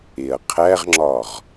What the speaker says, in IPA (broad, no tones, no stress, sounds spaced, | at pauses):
e ɐ̯ qʰ æ ʁ ŋ͡ǁ ɒ ʁ